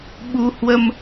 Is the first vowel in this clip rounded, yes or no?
yes